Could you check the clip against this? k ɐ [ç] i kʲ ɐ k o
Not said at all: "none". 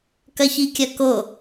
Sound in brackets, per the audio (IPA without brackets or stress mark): ç